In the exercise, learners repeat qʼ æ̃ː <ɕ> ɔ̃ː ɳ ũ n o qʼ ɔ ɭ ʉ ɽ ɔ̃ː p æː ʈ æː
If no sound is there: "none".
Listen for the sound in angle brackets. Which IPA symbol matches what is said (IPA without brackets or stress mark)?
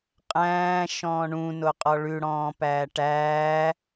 ʃ